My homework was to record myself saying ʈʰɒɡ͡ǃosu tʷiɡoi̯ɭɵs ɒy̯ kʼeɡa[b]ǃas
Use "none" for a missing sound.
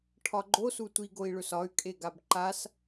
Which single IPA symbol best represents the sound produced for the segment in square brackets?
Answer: b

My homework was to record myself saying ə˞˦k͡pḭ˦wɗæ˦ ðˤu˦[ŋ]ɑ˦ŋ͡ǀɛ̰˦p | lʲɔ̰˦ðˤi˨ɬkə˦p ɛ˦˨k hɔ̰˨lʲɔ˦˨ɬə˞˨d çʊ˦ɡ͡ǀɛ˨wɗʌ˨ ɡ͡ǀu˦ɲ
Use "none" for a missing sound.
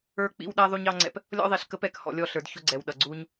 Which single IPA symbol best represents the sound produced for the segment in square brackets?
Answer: ɲ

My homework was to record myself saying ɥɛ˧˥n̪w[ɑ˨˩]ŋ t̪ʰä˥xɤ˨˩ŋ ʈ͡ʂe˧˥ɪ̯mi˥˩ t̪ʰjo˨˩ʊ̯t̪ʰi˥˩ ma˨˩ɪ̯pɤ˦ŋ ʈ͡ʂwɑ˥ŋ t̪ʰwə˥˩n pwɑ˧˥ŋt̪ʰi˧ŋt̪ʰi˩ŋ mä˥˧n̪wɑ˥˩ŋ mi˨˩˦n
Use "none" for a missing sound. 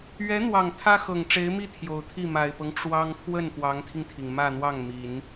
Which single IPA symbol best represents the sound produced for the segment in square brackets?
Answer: ɑ˨˩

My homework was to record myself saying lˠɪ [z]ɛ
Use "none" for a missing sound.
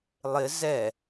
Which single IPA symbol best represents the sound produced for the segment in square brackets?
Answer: z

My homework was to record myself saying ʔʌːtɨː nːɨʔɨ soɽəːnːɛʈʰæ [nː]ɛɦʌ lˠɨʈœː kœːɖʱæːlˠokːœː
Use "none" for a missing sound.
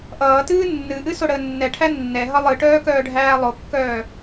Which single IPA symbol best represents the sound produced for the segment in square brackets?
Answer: nː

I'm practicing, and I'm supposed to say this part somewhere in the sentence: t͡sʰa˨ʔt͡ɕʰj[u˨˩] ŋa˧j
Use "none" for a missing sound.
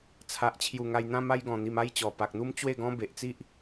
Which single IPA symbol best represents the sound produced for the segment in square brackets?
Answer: u˨˩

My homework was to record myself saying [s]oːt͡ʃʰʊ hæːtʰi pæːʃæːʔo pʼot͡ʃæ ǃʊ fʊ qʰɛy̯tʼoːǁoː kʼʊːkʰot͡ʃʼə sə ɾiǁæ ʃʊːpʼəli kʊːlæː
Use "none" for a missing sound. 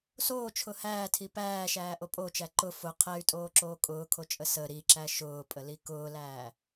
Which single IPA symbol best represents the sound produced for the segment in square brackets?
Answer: s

